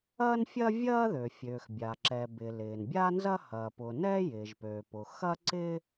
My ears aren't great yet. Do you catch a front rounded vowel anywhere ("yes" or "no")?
yes